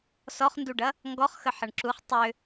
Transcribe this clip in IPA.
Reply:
s ɔ χ n d u ɖ ɐ | ŋ ɡ ɔ χ x ə ħ ɐ ɳ ǁ u χ tˤ ʏ

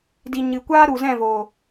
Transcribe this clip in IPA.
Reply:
d i˨ ɲ ɨ˨ kʷ aː˦ ɾ u˨ z ɛ̃˦˨ v o˨

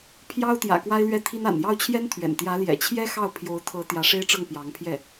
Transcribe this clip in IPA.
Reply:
pʰ j ɑ˥ ʊ̯ t̪ j ä̰˨˩ k w a˥ ɪ̯ l ɥ ɛ˥˩ t̪ʰ i˥ n a̰˨˩ n j ɑ˥˩ ʊ̯ t͡ɕʰ j ɛ˥ n t̪ʰ ɥ ɛ̰˨˩ n t̪ j ä˧˥ l j ɛ̰˨˩ t͡ɕʰ j ɛ˥ x ɑ˥˩ ʊ̯ pʰ j o˧˥ ʊ̯ t̪ʰ ɤ˧˥ t̪ j ä˧˥ ʂ e˥ ɪ̯ ʈ͡ʂ ɤ˥˩ ŋ p j ɑ˧˥ ŋ pʰ j ɛ˥˩

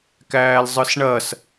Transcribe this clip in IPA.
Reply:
k æː l zˤ ɯ s ɳ ɐ s

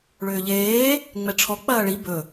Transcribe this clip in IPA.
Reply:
ɭ ʏː ʎ eː | ŋ͡m ɛ ʈ͡ʂʰ ɔ k͡p ɐː ɭ i b ɵ

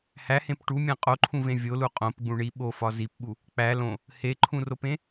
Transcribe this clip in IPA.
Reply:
h æ h ẽ p ʈ u mʲ æ̃ qʼ o ǃʰ ũ v ẽ vʲ o l u qʼ õ p ɡ͡b ũ ɳ i ɓ o f ɒ z i p ɓ u | k͡p æ l õ | h e ǃʰ ũ r o p ẽ

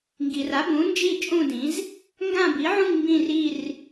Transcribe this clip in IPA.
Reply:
ŋ ɡ i˩ r a˩˥ b ũ˩˥ n d͡ʒ i˥˧ t͡ʃʼ ũ˥˧ d ĩ˩˥ z | ŋ ɡ ã˥˧ b i˩˥ ʕ ũ˥˧ ŋ m b ĩ˥˧ r i˥˧ r

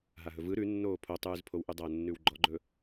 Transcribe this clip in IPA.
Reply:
ɦ a ɦ ɵ v ɯ ɾ ʉ nː oː pʰ o tˤ ʉː z pʰ o w ʔ ʉ dˤ a ʊ̯ nː ʉ w ɡ͡ǃ ɔ ɡ͡ǃ ɵ

